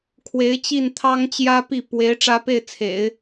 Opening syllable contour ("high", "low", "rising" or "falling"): rising